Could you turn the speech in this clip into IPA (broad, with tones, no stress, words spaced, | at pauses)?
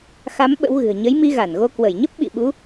xa˨˦m ɓə̰˧˥wɣɨ̤˨˩ə̯ ɲə˨˦j mi˧ɣa˧˩nɣo˧ kwə˧˩jɲə˦˥p̚ ɓḭ˧˨ɓu˨˦